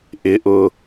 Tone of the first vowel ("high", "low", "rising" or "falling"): rising